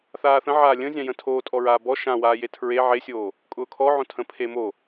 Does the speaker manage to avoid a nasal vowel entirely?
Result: no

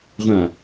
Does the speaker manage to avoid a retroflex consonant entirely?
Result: yes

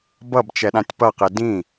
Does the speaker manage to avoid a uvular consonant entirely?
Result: no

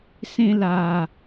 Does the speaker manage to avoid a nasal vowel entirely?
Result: no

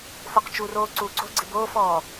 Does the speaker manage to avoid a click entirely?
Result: no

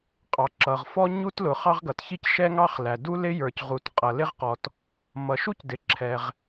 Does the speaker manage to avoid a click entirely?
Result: no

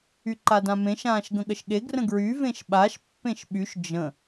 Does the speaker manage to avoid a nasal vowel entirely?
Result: no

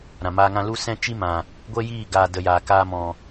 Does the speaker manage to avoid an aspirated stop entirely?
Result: yes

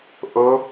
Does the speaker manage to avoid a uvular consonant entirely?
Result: yes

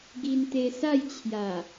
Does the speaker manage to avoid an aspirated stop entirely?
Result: no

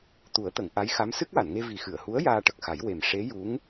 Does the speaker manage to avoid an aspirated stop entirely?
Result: yes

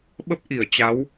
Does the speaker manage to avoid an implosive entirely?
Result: no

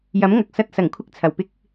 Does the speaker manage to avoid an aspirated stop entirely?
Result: no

